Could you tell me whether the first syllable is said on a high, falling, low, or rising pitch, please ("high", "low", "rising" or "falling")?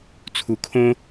low